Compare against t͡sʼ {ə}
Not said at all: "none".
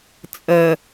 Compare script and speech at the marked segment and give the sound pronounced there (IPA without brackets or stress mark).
ə